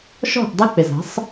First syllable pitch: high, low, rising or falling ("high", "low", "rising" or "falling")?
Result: falling